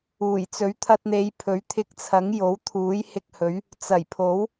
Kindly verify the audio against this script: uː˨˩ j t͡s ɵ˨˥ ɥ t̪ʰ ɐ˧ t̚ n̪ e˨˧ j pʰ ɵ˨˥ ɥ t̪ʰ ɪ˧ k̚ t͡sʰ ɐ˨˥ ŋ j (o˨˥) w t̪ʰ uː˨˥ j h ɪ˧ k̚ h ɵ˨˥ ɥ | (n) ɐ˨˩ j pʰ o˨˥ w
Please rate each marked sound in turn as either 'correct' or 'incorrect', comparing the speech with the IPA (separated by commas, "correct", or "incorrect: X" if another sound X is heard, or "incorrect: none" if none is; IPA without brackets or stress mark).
correct, incorrect: t͡s